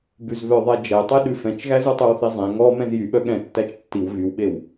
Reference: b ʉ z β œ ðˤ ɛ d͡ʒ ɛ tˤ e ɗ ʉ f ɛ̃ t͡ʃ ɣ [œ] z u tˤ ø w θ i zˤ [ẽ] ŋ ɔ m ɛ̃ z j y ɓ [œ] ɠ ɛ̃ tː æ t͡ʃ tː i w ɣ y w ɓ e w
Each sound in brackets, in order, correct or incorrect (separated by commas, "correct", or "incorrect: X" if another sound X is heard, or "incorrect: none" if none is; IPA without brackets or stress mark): incorrect: æ, correct, correct